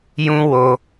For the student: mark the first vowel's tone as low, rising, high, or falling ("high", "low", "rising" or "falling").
high